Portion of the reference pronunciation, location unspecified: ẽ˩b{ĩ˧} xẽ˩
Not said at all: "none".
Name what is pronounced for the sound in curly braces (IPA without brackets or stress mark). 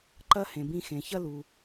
ĩ˧